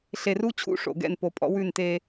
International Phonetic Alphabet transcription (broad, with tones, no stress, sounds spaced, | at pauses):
ɬ e˨ r u˦ t͡ɕʰ ṵ˦ ʂ o̰˨ ɡ ɛ̰˦˨ n p o˨ pʼ ɔ̰˦ w ʉ˦˨ n t e˦